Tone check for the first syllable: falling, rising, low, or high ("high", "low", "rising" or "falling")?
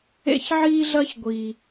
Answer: high